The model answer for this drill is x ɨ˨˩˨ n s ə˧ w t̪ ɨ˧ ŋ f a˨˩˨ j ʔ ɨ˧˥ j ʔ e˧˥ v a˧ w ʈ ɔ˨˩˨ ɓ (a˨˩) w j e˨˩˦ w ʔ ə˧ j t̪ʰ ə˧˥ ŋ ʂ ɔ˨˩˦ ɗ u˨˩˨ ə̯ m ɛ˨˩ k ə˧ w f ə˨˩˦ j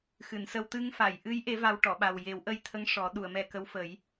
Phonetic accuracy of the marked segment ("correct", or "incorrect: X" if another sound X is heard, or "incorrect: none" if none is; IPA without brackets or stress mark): correct